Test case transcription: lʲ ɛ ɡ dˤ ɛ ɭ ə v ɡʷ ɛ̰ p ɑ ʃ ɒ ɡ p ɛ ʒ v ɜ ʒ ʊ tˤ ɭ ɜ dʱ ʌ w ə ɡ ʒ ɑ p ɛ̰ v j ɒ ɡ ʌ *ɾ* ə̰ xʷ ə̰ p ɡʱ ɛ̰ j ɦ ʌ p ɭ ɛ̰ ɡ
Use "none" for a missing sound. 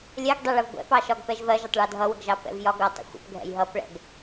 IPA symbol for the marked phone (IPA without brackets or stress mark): tˤ